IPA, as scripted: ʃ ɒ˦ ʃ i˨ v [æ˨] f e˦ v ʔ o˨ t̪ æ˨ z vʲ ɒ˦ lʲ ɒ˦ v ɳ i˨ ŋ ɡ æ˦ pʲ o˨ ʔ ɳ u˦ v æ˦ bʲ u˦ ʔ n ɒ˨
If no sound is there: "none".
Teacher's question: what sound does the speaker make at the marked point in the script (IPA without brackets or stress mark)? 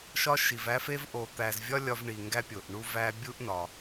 æ˦